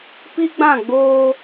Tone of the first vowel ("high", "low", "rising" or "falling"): high